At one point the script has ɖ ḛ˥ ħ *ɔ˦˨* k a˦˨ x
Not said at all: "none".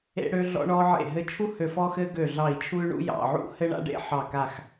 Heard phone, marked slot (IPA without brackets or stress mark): ɑ˦˨